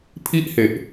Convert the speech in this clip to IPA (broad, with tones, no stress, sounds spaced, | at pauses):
pʰ i˥˩ ʔ h e˨˩ ʔ